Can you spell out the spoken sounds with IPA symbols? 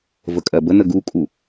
vəkʼɜbənə ɡukʼu

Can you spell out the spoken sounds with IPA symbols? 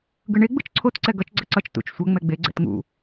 ɡɯɳe ɡ͡bɯt͡ʃǀʰot ǀɛɡʌt͡ʃ ɡ͡ǀʌǀʌt͡ʃ tṵt͡ʃ sʷʌ ŋ͡mɛɡ͡be ɡ͡ǀɛ̰tŋṵ

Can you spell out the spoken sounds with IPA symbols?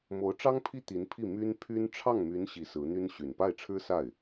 mo˧˥ʊ̯ʈ͡ʂɑ˥ŋpʰi˥ t̪i˧˥npʰi˥˩ my˥n pʰy˥n ʈ͡ʂʰɑ˥˩ŋmy˧˥n ɕi˧˥sɹ̩˧˥n̪y˥n ɕy˨˩npa˥˩ɪ̯ʈ͡ʂʰɻ̩˥sa˥˩ɪ̯

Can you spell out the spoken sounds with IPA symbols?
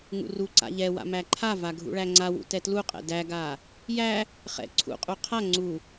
ŋṵruǀa̰ ʎɛwa̰ mæǃʰava ɡʱṵɭæŋ͡ǀawṵ tɛtluqʼɛ̰ dæɡa | jæ | χɛ̰ ǀʰṵqʼu qʰa ŋ͡ǀu

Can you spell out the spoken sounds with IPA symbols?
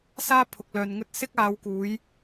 saː˥pʰʊ˨k̚lœː˨nŋɵ˥t̚ sɪ˥k̚aː˨˧wkuː˨˧j

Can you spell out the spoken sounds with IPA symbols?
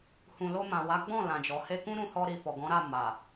hũ˨lo˧mã˨wa˨˦ ɡ͡bɔ̃˦˨lã˨d͡ʒɔ˨ he˧kũ˦ ɾũ˧hɔ˧ɾi˨ fɔ˨ɡɔ̃˨˦ɾa˦˨ ma˨

